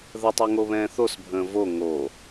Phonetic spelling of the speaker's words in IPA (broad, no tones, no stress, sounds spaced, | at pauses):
ð ə tˤ ɛ ŋ o β ɛ̃ː θ o s bʱ ə̃ː v o ŋ o